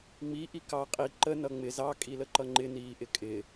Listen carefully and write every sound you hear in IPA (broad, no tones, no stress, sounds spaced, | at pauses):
ŋ͡m i ʔ i k ɑ qʼ i ǃ ə n ʌ ŋ͡m ɪ z ɑ kʼ i l ə ǃ ʌ ŋ͡ǃ ɪ n iː ʔ ɪ kʼ ɪ